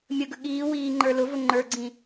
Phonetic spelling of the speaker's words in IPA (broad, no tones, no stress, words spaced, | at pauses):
mʲəɡə ɠiːwiːŋ͡ǃə˞ lʊvʊ ŋ͡ǃə˞ɡ͡ǀĩ